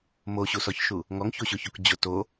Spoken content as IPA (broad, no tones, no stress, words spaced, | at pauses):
moɕusɔçʃu | ŋɔŋçoɕʊçok d͡ʑʊ to